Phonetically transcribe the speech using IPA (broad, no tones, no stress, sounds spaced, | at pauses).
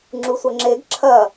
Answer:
ŋ͡ǁ u sʷ ʌ ŋ͡ǁ e ɡ ǁʰ ɐ